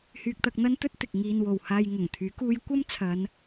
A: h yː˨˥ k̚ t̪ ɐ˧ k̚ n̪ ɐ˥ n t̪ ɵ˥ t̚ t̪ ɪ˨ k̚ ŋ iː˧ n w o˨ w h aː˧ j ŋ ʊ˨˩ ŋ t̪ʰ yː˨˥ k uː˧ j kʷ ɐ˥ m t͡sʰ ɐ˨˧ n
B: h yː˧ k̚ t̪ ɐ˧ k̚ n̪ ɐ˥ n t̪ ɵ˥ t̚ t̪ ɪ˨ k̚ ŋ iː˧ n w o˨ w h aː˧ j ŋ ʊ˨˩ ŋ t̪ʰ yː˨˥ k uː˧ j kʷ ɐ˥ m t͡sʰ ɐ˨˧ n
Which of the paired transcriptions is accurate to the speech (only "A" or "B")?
B